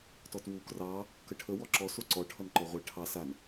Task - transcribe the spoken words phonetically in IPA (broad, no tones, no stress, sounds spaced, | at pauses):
t ɔ t w u k r ɑ | k ə ʈʰ ə w ɔ ǁ ɔ s o ǀ ɔ ʈʰ ʌ n ǃ ɔ ʁʷ ɛ ʈʰ ɑ s a n